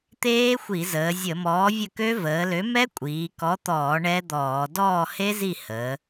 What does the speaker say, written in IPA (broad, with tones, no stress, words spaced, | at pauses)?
t̪eː˦˥xʷi˧˩˧zəː˩˧zʲə˧˩˧ mɔː˨˥vʲə˦˨kø˦˥ vəː˩˧lø˨˥mɛ˦˥ kʷʼiː˩˧kɔ˨˥t̪ɔː˧˩˧ ɳɛ˦˥d̪ɔː˧˩˧ dɔː˦˨he˦˥zi˦˨ həː˩˧